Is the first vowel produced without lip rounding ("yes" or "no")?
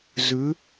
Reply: no